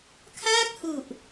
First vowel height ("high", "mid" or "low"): low